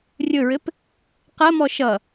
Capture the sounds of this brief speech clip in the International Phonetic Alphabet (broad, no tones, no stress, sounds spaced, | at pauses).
rʲ ɵ ɹ ɘ p | q ɐ m ɔ ʃ ʌ